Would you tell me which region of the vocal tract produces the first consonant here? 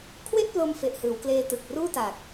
velum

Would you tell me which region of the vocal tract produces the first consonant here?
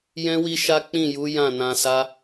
palate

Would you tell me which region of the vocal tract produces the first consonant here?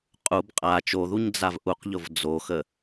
uvula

